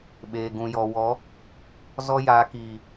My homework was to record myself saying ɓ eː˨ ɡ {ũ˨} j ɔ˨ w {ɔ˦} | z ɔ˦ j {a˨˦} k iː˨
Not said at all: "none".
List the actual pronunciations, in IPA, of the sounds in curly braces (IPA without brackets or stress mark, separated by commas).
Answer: ũ˨, ɔ˨˦, a˨˦